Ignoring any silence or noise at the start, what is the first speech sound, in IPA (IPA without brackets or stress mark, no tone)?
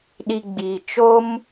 ɗ